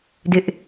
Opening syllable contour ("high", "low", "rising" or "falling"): high